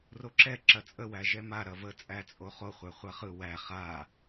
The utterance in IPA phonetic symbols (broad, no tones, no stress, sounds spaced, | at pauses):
r o ǁ ɛ ǁ ɐ t͡sʼ ə w æ ʒ ɛ m a ɾ ɐ v ə t͡sʼ æ t͡sʼ o χ o χʷ æ χʷ a χ ɯ w æ χ a